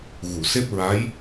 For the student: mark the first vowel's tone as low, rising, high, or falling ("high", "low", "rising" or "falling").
low